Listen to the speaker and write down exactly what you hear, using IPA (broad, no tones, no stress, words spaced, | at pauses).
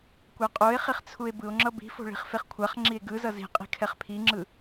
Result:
kʷaqʼoe̯χiχ t͡sʰue̯bɯo̯ŋ͡ǁʌ bi̤fo̤ ɭi̤χfeχkʷʰaχŋ͡ǁie̯ ɡɯzʌ zi̤qʼi̤ kʰɛχpʰiŋ͡ǁɯ